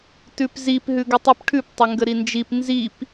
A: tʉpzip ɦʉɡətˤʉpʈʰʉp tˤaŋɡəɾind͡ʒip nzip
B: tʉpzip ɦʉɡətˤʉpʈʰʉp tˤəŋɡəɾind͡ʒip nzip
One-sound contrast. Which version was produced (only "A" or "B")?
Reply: B